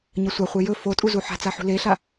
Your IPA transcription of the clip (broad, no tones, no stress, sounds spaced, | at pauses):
ɲ ɐ sʷ a χʷ e j ɵ f o tʼ u z u ħ a̤ t͡s a ħ ṳ l e ɬ a